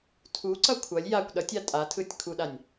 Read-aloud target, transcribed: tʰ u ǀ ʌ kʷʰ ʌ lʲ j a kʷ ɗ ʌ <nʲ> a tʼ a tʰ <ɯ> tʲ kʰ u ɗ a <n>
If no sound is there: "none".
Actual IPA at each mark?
tʲ, ɯ, nʲ

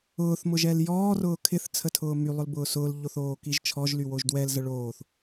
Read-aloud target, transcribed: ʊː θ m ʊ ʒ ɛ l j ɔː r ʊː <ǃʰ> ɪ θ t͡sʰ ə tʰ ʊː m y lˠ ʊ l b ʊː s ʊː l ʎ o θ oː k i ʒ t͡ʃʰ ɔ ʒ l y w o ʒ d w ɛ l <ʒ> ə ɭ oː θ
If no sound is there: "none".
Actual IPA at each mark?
kʰ, z

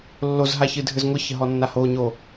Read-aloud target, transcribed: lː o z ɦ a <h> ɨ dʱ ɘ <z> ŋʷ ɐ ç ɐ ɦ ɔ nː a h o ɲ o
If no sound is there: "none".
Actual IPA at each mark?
ç, z

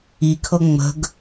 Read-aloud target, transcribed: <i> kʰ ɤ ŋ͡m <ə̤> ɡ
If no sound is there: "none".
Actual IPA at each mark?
i, ə̤

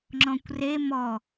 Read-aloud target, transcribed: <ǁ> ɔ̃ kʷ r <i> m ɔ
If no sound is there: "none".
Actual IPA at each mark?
ŋ͡ǁ, e

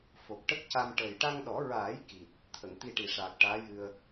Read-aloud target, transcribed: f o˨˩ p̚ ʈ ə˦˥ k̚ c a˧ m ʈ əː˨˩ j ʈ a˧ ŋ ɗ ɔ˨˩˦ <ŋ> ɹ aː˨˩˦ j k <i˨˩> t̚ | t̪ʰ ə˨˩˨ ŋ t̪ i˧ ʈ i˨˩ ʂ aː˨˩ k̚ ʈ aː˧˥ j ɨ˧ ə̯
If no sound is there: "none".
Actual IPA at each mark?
none, i˨˩

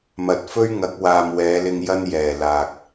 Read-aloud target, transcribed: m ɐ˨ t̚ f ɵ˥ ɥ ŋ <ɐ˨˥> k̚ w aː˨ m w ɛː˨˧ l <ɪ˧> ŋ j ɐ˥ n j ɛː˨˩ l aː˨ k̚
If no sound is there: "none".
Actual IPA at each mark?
ɐ˨˥, ɪ˧

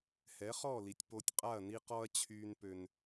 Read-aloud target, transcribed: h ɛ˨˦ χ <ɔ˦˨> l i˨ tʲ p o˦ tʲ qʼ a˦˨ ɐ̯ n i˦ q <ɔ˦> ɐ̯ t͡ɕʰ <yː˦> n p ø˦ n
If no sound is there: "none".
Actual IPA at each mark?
ɔ˦˨, ɔ˦, yː˦

